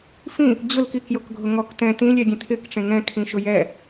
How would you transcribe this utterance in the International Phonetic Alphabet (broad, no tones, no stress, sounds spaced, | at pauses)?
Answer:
f ĩ | d͡ʑ ʊ l k i k j o k ɡʱ ʊ ŋ ɔ k t ɛ̃ t ĩ lʲ ɛ ɡʲ ẽ tʰ ɪ k ʈ͡ʂ ẽ ŋ ɛ̃ kʰ ĩ ʃ ʊ j ɛ